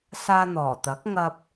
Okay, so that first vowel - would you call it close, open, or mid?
open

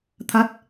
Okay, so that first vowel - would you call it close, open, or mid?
open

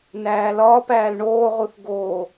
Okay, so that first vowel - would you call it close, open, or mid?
open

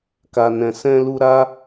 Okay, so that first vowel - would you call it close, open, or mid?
open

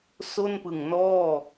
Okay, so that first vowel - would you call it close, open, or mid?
mid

